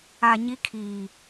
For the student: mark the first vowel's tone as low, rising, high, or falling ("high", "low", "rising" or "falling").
low